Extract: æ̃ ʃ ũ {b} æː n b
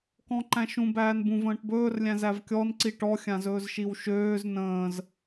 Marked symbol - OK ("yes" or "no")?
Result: yes